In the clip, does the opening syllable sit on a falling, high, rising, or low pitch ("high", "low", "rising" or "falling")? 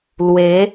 rising